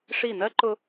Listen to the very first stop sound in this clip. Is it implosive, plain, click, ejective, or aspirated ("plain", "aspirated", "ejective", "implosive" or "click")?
click